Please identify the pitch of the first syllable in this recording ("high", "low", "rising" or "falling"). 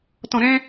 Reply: low